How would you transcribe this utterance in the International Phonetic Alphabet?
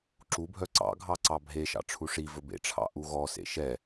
ǁubʱœ ǀɑ̰ɡʱɑ ǀɑbʱeʃɑ̰ ʈ͡ʂʰuʂivɵ bḛʈ͡ʂʰɑ̰ ʔuɣɔsḛ ʃɛ

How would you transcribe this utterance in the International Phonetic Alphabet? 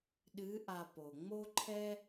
ɗɨ˧˥ ʔa˧ po˩ŋ͡mo˥ǃʰɛ˥

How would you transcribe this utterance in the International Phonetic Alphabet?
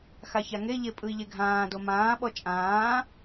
xaçaŋeʎe pʼɯi̯ʎeɡʱãːdo mãːɓɔ t͡ʃʼãː

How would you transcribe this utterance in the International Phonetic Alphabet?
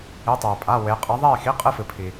i˧˥˧tˤeː˧pʼa˧˥˧ we˧˥ qʼɐ˧˥ðˤeː˥˧xi˧˥˧ qʼɨ˥˧fɨ˧pʰi˧

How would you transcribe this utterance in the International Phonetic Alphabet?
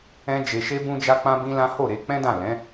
ɛ̃˦ d͡ʒe˧ʃe˦ bũ˧d͡ʒa˧ k͡pã˦bĩ˦lã˦ ho˦˨ɾe˧k͡pɛ̃˦dã˦˨ lɛ̃˨˦

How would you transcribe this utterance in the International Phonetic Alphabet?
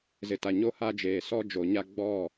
zɪ˨ta˨ ɲo˦ha˦d͡ʒeː˨ sɔ˦d͡ʒo˨ɲa˦ ɡ͡bɔ˦˨

